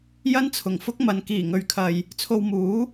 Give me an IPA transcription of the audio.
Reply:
jɐ˥nt͡sʰʊ˨˩ŋfʊ˥k̚mɐ˨˧n kiː˨˩ŋɵ˨ɥkʰɐ˨j | t͡sʰo˧wmuː˨˥

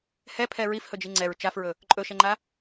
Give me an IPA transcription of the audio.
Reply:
hɛpʰɛ ɹifhɵd͡ʒi ŋ͡ǀɛɹ t͡ʃafɹɵ | ǃʼɵʃɛŋ͡ǃa

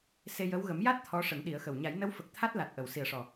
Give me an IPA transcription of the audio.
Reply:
se˧jə˧˥w ɣə˨˩˦mja˦˥t̚ t̪ʰɔ˧˥ʂə˨˩˦ŋ ɗi˨˩˦ə̯xə˨˩w ɲa˨˩˦jnə˧˥w fə˨˩k̚ t̪ʰa˦˥t̚la˨˩t̚ ʔə˨˩˨w si˨˩ə̯ʂɔ˨˩

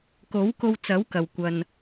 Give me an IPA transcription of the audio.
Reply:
ko˨˥wko˧wt͡sɐ˨˥w kɐ˨wkʷɐ˧n

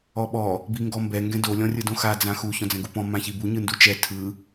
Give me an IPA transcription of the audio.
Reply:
ɔɓɔ | biŋɡɔmbɛ ŋɡɛ̃do lʲɔ̃rʲɯdõxa d͡zãxu çɔ̃d͡zɛ̃ɡupɔ̃ mãçibu ɲɯndut͡ʃɛ tʰɯ

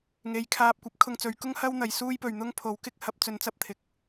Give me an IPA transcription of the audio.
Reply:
ŋe˨˧jkʰaː˧p̚ kʷɐ˨˥p̚ kʰʊ˧ŋt͡sɵ˨˧ɥkʊ˥ŋ hɐ˥wn̪ɐ˨j suː˥jpɵ˨ɥn̪ʊ˥ŋpʰo˨˥w kɪ˥k̚hɐ˧p̚t͡sɵ˧n t͡sɐ˥p̚t̪ʰɪ˨k̚

